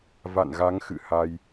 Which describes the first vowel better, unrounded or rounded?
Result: unrounded